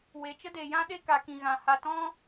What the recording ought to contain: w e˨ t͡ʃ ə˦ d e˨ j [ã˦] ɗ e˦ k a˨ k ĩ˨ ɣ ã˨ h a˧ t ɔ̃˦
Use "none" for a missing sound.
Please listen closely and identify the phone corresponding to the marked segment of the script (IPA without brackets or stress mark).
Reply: ã˦